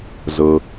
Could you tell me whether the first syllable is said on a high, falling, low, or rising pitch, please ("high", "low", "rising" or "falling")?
low